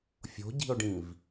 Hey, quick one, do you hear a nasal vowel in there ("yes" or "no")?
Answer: yes